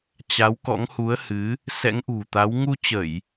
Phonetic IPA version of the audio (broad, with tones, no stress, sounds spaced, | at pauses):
t͡ɕ a˨˦ w k ɔ̰˧˥ ŋ h u˨˦ ə̯ h ɨ˨˦ | s ɛ̰˧˥ ŋ ʔ ṳ˨˩ t̪ a˨˦ w ŋ u˧ t͡ɕ ə˧˩˨ j